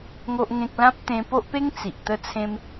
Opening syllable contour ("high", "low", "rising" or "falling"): high